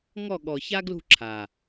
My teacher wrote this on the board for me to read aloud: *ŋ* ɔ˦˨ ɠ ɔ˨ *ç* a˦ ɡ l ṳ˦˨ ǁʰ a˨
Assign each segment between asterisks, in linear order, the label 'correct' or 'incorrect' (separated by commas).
correct, correct